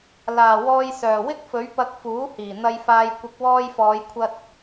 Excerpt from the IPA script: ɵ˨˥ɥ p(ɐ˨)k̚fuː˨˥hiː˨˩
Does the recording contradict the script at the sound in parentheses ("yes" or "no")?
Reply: yes